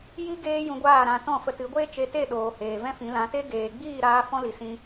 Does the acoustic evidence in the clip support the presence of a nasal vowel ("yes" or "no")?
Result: yes